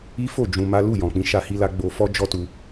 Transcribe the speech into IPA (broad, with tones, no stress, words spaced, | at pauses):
i˦fo˦˨ d͡ʒũ˧ma˦ lu˦˨ jɔ̃˨k͡pĩ˧ ʃa˧hi˧la˧ ɡ͡bo˧fɔ˦ d͡ʒɔ˦tu˧